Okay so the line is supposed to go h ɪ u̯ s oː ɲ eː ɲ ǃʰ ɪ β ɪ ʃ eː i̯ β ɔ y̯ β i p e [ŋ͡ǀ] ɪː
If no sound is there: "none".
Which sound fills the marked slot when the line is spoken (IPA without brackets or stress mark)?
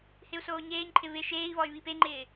ŋ͡ǃ